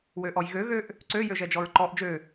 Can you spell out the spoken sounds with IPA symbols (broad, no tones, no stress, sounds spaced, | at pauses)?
w ø ʔ ɔ j ɣ ø ɣ ø ʔ | ǀ ø j ø ʒ ɛ d͡ʒ ɔ ɹ ǃ ɔ ʔ d͡ʒ ø